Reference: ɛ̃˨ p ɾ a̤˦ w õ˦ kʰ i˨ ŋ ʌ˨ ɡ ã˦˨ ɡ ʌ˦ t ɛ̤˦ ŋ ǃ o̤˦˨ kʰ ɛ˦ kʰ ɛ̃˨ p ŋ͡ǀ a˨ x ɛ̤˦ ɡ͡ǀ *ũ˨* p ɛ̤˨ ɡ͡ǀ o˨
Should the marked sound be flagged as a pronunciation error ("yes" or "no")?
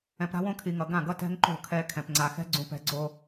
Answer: no